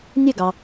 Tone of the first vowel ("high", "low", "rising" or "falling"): falling